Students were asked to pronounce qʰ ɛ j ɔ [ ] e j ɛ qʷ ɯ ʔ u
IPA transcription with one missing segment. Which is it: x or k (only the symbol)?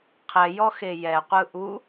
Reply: x